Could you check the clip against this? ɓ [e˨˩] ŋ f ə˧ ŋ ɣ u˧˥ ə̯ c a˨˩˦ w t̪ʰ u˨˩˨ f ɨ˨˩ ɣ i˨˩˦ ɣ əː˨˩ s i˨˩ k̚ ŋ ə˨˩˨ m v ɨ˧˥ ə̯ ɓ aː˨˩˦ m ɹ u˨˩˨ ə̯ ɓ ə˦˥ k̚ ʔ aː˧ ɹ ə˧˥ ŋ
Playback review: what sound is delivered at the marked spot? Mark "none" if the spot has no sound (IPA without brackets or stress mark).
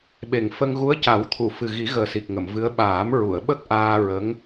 e˨˩